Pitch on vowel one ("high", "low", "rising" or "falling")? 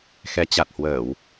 rising